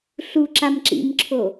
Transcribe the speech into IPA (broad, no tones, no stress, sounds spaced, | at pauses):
ɬ u ǁ a m ǁ ḭ m ǁʰ o